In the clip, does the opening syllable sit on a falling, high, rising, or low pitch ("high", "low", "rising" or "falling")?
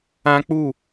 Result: high